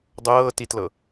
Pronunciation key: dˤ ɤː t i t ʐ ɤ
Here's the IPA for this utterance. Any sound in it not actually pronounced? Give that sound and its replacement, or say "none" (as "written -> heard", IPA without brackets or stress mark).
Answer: ʐ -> l